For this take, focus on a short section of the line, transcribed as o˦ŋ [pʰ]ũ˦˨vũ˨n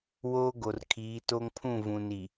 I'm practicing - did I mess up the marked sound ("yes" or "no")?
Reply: no